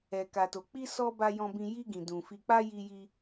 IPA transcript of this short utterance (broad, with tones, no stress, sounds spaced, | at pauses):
ɛ˨ k a˨ t o˨ k͡p i˧ s ɔ˦ b a˦ j ɔ̃˧ b ĩ˧ j i˧ ɡ ĩ˨ d ũ˨ f i˧ k͡p a˦ j i˧ j i˧